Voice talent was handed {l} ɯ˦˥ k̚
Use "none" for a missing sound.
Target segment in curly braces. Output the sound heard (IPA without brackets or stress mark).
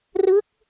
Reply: r